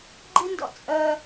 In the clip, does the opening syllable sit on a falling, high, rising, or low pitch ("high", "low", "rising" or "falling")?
high